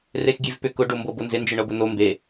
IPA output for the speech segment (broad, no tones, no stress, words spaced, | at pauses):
rexɡʲevpʏ kʊ ɖombɤbonzɪ nd͡ʒɪɳɤbʊno mbe